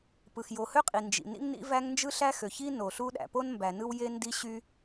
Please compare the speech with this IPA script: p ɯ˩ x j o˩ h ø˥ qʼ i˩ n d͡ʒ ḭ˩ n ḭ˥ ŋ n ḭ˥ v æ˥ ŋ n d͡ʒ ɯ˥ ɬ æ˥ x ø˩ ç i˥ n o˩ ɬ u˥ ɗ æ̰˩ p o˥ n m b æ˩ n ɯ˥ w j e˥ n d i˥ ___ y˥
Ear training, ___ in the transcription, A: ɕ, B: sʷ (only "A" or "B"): A